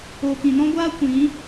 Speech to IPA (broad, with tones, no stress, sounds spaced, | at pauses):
oː˨ k ĩ˨ n ɔ̃˦ ɡʷ aː˦ kʷ ĩ˨˦